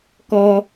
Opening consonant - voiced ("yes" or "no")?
no